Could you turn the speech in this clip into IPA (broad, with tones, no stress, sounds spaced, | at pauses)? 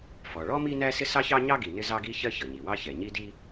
f ɔ˩ ɭ ɔ˥ m i˥ n æ˥ s ɪ˥ s ɑ˥ ç ɑ˥ ɲ ɑ˥ ɡ i˩ n ɪ˥ z ɑ˥ ɡ i˥ ç ɜ˥ ç ʌ˩ ɲ i˩ w ɑ˥ ç ɛ˩ ɲ i˥ d i˥